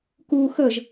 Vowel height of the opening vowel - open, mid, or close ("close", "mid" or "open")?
close